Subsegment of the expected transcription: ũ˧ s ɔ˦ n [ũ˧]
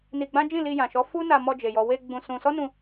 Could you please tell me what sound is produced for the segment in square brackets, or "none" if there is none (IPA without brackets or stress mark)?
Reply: ũ˧